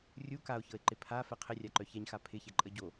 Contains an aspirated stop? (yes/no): yes